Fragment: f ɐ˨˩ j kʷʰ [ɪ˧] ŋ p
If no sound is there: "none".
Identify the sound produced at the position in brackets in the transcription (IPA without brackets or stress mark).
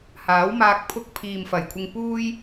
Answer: ɪ˧